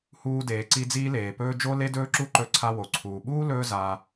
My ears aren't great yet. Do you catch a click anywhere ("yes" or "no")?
yes